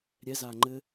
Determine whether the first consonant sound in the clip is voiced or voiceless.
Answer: voiced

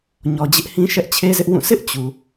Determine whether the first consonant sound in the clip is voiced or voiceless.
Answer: voiced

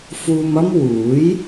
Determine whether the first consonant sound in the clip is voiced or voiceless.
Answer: voiceless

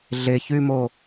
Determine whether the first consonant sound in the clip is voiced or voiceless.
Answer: voiced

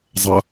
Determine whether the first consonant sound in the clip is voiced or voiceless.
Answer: voiced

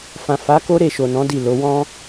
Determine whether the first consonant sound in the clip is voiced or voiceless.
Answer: voiceless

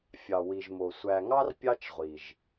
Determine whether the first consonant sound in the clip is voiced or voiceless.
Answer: voiceless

